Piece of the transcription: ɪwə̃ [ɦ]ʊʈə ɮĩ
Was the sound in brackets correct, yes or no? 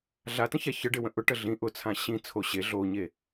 no